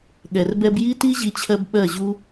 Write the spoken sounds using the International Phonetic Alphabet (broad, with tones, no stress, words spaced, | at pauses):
ɠɛ˨rbɛ˧b ji˦ti˦ʑi˧t͡ɕʰɜ˧b ɓɜ˦˨ʑu˦